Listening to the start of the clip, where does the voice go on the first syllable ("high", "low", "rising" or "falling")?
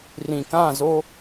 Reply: low